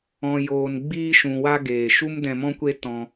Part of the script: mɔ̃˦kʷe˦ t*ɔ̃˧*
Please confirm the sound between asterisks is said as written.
yes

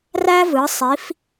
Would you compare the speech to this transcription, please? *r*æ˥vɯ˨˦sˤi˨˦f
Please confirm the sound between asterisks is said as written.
yes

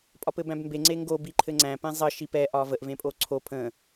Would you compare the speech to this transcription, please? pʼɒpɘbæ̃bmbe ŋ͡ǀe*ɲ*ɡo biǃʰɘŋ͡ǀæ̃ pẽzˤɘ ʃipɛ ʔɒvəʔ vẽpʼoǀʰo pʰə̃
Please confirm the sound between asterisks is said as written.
no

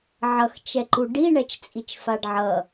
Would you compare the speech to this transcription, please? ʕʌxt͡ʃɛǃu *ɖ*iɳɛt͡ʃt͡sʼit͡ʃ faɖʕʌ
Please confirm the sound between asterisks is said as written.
yes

